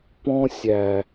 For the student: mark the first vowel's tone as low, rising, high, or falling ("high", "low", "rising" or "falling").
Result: high